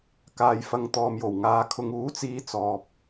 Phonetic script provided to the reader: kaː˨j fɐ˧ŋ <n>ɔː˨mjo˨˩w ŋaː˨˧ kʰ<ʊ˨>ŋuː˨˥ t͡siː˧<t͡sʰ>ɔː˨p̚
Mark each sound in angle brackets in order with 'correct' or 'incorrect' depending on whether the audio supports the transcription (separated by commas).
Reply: incorrect, correct, incorrect